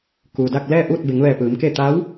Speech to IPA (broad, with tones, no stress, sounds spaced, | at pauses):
k uː˩ d a˥˨ k̚ l ɛː˥˨ ʔ uː˥˨ t̚ b e˩˧ ŋ ʋ ɛː˧˩ p ɯː˩˧ m k e˥˨ t̪ a˧˥ w